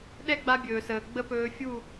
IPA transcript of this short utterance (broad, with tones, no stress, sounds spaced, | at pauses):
ɗ ɛ˦ ɡ͡b a˧ bʲ ɵː˨ s əː˨ ɡ͡b ə˦ p ɵː˧ fʲ u˦˨